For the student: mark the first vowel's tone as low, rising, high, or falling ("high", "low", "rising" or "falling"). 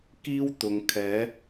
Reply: high